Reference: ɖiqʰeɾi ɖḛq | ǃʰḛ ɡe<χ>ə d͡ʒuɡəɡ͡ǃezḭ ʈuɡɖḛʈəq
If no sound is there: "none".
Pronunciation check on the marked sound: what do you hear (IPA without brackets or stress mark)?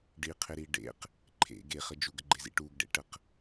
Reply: χ